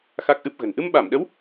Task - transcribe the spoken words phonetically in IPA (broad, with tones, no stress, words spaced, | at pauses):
xa˦˥k̚ʔɨ˦˥p̚ɣə̤˨˩n ʔɨ˧mɓa˧˩mɗə˨˦w